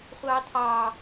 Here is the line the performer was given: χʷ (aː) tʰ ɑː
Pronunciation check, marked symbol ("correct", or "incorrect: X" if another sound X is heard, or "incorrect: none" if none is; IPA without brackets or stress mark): incorrect: ɑː